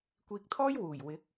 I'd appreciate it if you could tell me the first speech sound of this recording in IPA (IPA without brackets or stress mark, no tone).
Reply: kʷ